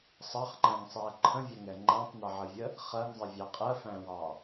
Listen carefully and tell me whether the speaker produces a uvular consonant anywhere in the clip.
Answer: yes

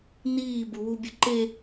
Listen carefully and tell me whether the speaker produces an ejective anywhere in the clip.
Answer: no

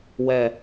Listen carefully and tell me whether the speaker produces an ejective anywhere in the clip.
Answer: no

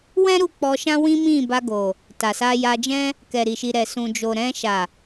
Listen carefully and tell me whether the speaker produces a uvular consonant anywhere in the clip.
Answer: no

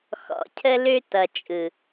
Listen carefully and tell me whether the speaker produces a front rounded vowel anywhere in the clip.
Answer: yes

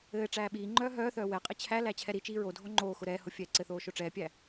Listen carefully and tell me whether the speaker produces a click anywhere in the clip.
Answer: yes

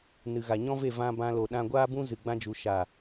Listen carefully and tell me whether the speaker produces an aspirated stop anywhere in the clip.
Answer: no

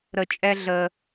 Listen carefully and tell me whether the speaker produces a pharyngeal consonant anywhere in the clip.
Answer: no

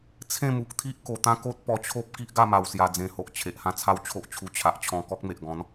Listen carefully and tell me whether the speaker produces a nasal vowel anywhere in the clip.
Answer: yes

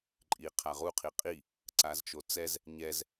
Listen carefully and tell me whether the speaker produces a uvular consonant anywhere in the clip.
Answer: yes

